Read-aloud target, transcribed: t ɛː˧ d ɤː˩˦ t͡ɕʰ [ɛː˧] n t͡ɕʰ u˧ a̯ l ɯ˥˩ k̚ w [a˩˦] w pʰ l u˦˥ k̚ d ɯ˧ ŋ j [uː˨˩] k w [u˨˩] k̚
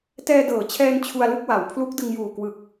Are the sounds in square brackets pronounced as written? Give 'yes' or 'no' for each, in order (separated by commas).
yes, yes, yes, no